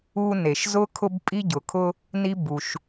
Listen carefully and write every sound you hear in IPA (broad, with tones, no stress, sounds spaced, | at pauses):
u˥ n e˩ ʃ z ʊ˥ kʰ ʊ˥ b pʼ i˥ ɟ ʊ˩ kʰ ʊ˥ | n i˥ b u˩ ʃ